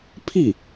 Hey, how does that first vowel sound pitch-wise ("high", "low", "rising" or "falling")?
falling